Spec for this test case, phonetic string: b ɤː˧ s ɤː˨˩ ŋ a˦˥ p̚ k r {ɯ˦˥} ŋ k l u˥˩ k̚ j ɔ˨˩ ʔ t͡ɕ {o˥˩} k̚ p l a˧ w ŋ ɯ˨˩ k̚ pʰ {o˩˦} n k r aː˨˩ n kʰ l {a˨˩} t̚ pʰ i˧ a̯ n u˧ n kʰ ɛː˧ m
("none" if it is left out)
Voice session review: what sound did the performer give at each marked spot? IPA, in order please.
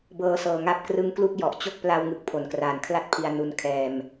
ɯ˦˥, o˥˩, o˩˦, a˥˩

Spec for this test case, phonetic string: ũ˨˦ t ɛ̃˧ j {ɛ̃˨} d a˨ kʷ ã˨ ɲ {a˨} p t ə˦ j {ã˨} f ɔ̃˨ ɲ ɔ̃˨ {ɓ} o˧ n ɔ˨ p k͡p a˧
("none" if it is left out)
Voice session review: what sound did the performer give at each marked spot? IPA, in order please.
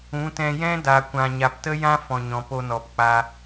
ɛ̃˦, a˨, ã˦, p

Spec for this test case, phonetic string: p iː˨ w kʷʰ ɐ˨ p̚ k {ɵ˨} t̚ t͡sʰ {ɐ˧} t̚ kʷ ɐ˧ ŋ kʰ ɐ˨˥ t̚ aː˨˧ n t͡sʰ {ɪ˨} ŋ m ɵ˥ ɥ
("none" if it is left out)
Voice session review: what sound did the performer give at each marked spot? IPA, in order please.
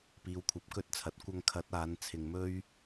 ɵ˧, ɐ˨, ɪ˧

